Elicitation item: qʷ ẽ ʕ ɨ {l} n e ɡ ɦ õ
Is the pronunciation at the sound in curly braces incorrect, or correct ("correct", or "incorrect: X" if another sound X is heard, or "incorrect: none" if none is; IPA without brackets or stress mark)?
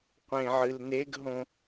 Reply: correct